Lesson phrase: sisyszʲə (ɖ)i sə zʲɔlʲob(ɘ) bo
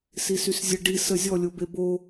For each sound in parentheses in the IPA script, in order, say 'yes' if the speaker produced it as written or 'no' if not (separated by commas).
yes, no